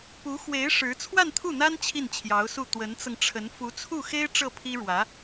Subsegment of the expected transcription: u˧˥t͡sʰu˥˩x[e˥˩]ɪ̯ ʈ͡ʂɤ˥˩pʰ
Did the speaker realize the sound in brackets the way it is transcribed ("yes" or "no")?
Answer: no